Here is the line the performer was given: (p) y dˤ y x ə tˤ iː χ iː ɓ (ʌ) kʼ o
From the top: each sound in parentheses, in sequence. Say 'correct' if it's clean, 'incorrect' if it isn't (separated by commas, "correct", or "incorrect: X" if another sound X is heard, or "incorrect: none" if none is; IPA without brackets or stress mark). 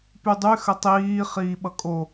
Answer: correct, correct